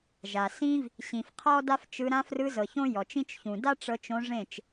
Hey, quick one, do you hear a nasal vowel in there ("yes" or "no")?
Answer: yes